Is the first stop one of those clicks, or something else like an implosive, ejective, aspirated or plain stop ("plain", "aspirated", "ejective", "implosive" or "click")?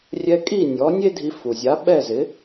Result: ejective